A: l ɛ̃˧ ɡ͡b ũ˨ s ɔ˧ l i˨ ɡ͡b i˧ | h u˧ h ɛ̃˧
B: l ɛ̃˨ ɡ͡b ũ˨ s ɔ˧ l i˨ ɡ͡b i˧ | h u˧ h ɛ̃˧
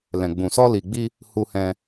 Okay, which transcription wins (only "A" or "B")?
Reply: B